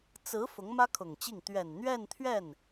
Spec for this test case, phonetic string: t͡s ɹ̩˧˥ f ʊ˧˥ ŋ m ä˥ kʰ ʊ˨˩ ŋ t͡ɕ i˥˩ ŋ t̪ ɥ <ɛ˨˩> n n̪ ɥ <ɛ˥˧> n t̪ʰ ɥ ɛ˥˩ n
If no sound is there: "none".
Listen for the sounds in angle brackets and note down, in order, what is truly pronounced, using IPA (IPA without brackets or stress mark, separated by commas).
ɛ˨˩, ɛ˥˧